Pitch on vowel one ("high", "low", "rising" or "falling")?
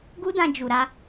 high